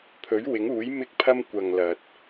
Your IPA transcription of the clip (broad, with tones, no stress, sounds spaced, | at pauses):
pʰ ɵ˨˥ ɥ w ɪ˨˥ ŋ uː˨˥ j m ɪ˧ k̚ pʰ ɐ˧ m kʷ ɐ˨ ŋ l ɐ˨ t̚